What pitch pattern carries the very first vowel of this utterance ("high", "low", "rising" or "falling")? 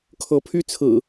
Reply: rising